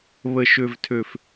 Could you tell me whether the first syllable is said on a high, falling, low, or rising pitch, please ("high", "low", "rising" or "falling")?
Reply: low